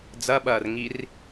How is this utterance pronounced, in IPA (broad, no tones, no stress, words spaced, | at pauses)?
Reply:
d͡zɐɓɐːrŋir